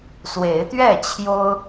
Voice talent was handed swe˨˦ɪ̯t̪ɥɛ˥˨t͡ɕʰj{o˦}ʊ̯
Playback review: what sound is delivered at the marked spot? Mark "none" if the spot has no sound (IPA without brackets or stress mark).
o˦